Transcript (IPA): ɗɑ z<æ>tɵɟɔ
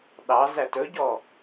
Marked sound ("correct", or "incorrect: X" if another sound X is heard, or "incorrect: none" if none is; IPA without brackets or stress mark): correct